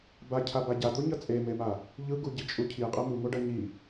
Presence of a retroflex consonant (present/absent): present